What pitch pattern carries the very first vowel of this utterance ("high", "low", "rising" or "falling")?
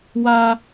high